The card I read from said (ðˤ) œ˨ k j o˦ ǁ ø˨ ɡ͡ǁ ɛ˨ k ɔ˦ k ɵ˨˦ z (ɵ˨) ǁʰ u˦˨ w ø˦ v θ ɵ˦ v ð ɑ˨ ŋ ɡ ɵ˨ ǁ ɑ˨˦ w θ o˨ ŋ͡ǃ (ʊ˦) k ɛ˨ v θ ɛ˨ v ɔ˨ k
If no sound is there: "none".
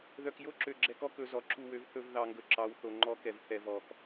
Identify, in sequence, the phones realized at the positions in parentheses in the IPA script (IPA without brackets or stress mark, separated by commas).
ð, ɔ˨, ɔ˦